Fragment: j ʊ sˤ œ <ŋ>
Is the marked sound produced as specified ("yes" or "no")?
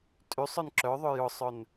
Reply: no